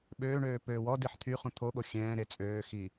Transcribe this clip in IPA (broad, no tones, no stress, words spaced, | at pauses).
ɓøːɳøː pøːwɔdiħ t̪ʰy χũt̪ʰoɠo xʲɛ̃ːɾe t͡sʼøːxi